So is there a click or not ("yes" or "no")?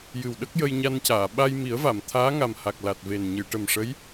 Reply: no